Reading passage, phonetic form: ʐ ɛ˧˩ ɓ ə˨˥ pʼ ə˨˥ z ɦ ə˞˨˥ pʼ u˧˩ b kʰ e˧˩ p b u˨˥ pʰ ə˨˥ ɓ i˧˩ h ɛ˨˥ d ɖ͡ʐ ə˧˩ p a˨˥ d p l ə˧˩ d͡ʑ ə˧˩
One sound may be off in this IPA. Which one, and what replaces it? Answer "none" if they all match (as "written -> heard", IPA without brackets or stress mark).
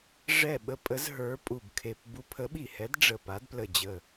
none